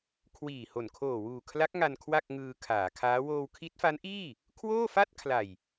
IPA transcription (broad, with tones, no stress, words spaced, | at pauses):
kʰwiː˨˩ho˨˩n kʰoː˨˩wuː˨˩kʰla˦˥k̚ŋa˧n kʰwa˥˩k̚ŋɯː˧ kʰaː˩˦kʰaː˦˥ woː˧wkʰi˦˥t̚fa˦˥nʔiː˥˩ | kʰwoː˥˩fa˥˩t̚ kʰla˨˩j